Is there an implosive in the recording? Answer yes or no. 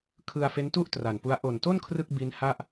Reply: no